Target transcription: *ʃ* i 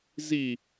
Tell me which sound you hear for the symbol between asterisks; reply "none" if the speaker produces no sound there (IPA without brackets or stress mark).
z